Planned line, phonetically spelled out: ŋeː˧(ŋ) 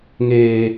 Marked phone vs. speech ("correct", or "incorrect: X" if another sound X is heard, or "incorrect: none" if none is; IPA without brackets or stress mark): incorrect: none